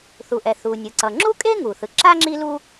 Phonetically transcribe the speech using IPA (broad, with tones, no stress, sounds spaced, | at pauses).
θ u˩ ʔ ɛ˩ θ u˩ nʲ ɯ˩ ǀ ʌ˩ ŋ͡ǁ u˥ kʼ e˥ ŋ u˩ θ ɯ˩ ǁ a˥ ŋ͡ǁ i˥ l u˥